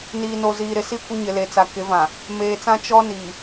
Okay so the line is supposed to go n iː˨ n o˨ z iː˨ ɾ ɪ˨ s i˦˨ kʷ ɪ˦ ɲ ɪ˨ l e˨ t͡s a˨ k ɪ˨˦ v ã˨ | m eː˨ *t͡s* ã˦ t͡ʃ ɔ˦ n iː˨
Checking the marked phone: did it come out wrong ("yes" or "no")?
no